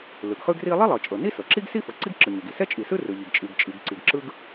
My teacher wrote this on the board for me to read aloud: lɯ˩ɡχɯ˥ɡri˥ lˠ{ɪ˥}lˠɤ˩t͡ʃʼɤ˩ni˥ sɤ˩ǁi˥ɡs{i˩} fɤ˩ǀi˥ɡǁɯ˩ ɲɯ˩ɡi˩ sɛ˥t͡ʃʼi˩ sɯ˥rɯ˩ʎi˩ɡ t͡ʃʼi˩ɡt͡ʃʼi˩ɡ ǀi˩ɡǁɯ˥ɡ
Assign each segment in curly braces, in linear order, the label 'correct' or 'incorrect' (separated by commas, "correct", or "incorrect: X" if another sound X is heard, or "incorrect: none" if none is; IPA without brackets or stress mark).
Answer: incorrect: i˥, incorrect: i˥